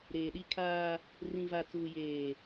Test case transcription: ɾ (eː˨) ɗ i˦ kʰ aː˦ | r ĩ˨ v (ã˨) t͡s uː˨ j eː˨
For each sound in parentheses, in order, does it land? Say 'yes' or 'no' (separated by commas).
yes, no